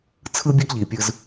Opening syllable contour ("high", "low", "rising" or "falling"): high